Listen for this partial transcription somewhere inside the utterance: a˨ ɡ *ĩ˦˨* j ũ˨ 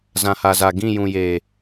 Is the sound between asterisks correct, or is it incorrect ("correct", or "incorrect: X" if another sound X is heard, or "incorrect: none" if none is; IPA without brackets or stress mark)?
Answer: correct